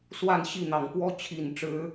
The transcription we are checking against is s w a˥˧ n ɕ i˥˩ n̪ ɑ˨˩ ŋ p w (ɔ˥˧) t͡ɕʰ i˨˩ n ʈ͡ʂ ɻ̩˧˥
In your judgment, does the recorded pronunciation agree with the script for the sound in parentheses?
no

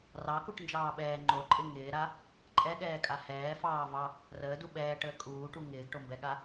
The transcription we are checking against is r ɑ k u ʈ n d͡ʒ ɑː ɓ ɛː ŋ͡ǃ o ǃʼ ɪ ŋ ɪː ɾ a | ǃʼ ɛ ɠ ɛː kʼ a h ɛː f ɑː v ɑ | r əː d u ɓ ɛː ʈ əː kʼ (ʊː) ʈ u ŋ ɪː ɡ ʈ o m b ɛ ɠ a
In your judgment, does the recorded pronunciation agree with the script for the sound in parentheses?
no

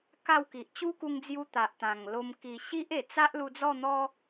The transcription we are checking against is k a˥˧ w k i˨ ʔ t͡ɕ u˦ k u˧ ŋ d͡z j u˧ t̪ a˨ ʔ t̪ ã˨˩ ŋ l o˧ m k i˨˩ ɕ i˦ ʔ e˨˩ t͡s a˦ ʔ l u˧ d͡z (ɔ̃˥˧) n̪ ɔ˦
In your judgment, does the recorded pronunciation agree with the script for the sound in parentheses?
no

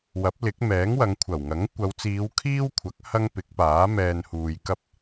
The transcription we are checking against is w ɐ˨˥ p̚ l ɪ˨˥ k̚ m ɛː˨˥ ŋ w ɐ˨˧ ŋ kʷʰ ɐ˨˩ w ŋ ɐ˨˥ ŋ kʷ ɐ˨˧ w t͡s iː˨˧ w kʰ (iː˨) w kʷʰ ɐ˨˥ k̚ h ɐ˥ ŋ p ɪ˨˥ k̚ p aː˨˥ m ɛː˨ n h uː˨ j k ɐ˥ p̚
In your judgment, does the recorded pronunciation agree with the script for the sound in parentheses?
no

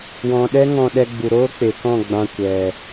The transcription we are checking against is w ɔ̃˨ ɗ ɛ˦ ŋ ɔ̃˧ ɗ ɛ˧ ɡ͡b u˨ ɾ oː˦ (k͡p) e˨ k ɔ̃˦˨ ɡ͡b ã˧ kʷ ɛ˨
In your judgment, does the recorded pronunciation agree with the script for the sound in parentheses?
yes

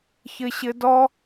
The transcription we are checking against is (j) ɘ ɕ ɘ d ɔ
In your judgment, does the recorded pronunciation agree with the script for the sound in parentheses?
no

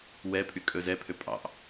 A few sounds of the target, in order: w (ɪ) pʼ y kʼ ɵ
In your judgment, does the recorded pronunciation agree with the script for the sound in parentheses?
no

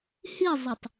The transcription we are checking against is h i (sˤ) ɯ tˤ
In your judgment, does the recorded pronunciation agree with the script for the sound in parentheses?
no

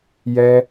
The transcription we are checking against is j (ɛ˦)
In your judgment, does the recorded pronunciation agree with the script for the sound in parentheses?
yes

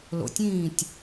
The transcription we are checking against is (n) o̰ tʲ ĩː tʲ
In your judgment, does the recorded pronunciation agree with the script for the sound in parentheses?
no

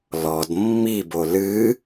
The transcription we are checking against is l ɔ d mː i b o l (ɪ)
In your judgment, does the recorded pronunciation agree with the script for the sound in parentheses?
no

